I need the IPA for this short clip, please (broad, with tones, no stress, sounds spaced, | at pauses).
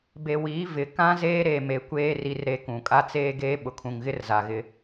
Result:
b e˨ w iː˨˦ v ɪ˨ k ã˦ z eː˦ ɾ e˨ m e˨ kʷ eː˦ r i˦ r ɾ e˦ k ũ˨ kʼ a˦ t͡s eː˦ ɡ eː˦ ɓ ʊ˨ kʰ ũ˨ ŋ ɣ ɪ˦ r z a˨ ɣ ɪ˦